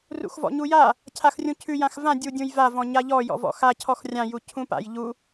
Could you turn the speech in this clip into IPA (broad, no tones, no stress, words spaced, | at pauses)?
rṵxvɔ̰ɲuja | cʰaxrʲũcʰʉ jãxvã dʲudʲũjva vɔ̃ɲaʎɔ jɔ̰vɔ̰xa cʰɔxrʲã jucʰũpa̰j ʎu